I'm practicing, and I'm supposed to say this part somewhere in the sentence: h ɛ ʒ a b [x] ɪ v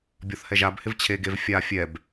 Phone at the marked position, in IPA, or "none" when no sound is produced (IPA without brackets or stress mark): h